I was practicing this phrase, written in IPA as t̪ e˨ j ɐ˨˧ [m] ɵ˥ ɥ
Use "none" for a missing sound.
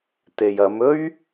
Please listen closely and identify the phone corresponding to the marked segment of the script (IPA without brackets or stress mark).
m